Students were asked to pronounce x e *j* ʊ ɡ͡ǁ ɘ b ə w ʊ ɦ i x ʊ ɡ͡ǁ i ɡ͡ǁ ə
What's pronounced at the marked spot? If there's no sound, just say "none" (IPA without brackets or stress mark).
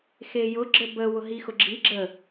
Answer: j